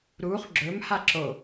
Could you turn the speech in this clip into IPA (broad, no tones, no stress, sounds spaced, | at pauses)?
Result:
ɾ u χ ɡ͡ǁ ɵ m h a ǁ o